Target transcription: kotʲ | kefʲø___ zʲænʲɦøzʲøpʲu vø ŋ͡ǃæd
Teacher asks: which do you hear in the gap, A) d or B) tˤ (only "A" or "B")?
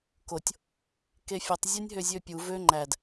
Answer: B